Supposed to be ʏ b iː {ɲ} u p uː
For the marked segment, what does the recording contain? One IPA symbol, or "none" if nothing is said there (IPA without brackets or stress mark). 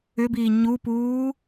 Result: ɲ